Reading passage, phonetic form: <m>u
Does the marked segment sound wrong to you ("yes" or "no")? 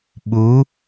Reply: yes